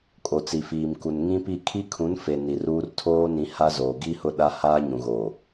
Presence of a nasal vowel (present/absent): present